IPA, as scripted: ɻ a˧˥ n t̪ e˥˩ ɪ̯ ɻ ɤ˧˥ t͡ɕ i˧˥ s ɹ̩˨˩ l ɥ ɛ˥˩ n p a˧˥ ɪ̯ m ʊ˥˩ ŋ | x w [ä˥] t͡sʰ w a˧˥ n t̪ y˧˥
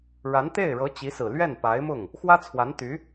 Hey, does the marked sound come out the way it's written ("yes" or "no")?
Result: yes